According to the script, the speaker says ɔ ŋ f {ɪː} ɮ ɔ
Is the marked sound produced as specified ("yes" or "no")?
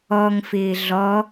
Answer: yes